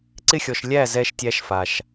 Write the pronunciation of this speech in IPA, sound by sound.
ǀɪ˦xʲɔ˨ʃ lʲæ˦˨ zɛ˧ʃtʲæ˧ʃ fa˨ʃ

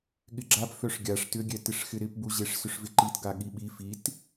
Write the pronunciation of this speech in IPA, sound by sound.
ɠɪɡ͡ǁap fœʂɡʲaʂ tʏɡʲɛtɪʂ xɪɾɪpbuʑeʂ sʏʂvɪǃit ɡaɠiɓi fit

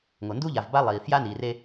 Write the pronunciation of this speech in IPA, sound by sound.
ŋo˨ ndu˦ʎa˨vba˦ lˠiː˨ fja˦niː˨re˦

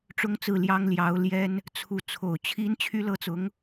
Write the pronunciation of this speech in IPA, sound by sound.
ʈ͡ʂʊ˥ŋt͡sɹ̩˥˩ljɑ˥ŋ ljɑ˧˥ʊ̯ljɛ˥n | t͡sʰu˧˥ t͡sʰo˨˩ʊ̯ t͡ɕʰi˥n t͡ɕʰy˥lɤ˥t͡sʊ˧˥ŋ

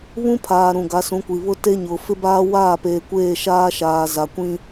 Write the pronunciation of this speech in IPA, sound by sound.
βũ˦pʰaː˨ ɾũ˨ɡa˨˦sũ˨˦kʷi˨ βʊ˦te˦ ɲʊ˨ fɪ˦baː˦waː˦˨peː˨ kʷeː˦˨ʃaː˦ʃaː˨ za˨kʷĩ˦

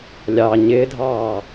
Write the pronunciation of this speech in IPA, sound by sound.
lʲɑ ɲɪːdʱɑː

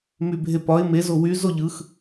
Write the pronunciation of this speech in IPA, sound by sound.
mybʱepɒɪ̯ me zowy zoʎɯx

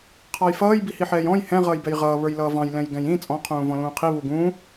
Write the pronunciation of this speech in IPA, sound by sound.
qʰɑjfʌːj bihiħɛːjɔ̃j hɛ̃ ʁʌːjbɛjʁʌː βə˞jlʌːvɑ̃j lɛ̃jɡɛ̃jĩ t͡sʼɔ̃ qʰũːvɔ̃lũːqʰi βuɡũː

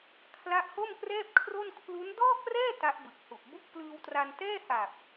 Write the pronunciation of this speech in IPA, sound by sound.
kʰla˦˥ʔho˥˩mkrɛː˥˩p̚kʰro˥˩n kʰlu˦˥n dɔː˥˩krɛː˥˩ ta˦˥ʔbɯ˨˩k̚hu˨˩ʔ bu˥˩k̚plɯː˧wtra˧n tɛː˥˩ha˨˩p̚

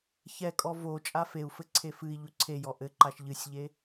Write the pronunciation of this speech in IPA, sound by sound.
çɛkʼɔ vo t͡ʃʼafeu̯fɘǀʰe fɨi̯ ʎuǀʰejɔ ʔɘǃaʃ ʎɨsʲʎe

